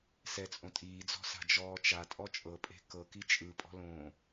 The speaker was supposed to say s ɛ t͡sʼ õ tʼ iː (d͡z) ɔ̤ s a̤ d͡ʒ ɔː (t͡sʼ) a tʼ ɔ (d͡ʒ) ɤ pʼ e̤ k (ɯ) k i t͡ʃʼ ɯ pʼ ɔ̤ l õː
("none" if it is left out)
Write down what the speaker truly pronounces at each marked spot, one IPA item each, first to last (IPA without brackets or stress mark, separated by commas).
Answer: d͡z, t͡ʃ, t͡ʃʼ, ɤ